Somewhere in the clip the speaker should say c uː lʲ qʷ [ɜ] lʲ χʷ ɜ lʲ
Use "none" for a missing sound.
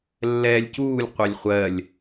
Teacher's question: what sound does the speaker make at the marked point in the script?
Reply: ɛ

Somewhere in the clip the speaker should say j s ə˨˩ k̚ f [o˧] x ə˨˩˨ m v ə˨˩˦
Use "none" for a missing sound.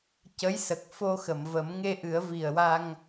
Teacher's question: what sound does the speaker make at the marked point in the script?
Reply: o˧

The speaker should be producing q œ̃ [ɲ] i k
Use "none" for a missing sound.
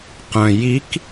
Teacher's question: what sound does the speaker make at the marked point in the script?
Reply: j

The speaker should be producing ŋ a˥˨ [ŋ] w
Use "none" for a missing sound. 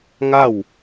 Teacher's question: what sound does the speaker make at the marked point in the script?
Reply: none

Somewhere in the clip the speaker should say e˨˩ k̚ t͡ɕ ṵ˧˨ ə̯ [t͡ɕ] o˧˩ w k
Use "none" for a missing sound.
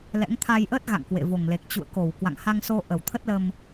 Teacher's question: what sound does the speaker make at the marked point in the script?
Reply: k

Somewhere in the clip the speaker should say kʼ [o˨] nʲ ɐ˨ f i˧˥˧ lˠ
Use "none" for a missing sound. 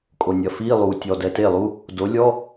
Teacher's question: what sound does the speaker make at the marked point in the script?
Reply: o˨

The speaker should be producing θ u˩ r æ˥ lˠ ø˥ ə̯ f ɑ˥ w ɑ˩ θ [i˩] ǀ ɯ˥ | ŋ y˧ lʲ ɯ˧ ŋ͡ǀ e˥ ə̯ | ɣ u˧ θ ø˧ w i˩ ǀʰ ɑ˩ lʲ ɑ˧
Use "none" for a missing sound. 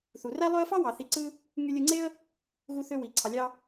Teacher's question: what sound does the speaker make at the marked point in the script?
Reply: i˧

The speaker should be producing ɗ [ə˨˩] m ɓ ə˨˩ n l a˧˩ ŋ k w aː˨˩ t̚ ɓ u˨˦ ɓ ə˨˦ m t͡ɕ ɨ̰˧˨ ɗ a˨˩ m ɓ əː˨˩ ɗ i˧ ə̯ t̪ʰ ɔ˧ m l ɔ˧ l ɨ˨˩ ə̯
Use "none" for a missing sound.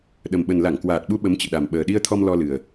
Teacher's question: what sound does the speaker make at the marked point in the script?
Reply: ə˨˩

